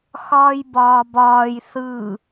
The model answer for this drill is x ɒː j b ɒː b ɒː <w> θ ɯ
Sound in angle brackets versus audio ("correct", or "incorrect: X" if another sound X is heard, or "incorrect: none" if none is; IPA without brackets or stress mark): incorrect: j